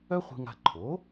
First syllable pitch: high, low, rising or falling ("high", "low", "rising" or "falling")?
high